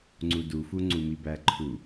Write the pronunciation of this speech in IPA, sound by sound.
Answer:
ŋ͡ǀudufu ŋ͡ǀumibæǃʰu

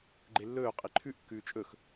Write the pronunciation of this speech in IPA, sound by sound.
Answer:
ɡ͡ǃelːɵː qʼiǃʰʉʔ kːʉːt͡ʃʼɵx

